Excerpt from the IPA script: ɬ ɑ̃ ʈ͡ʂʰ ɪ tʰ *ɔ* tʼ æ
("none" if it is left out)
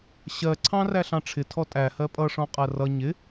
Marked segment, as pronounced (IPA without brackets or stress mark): ɔ